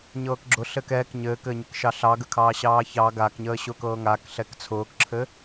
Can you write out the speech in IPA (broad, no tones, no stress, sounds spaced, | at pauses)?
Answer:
ɲ ɤː k ɡ͡ǁ ʊ ɬ ɘ k ɛː k ɲ ɘː k ɘː ɲ ɘ k ʃ ɑ ɬ ɑ ɡ ə kʰ ɑː ɕ ɑː ç ɑ ɡ a k ɲ əː ɕ ʊː k ɤː ŋ a k ɬ ɛ k t͡sʰ ʊː k ǁʰ ɘ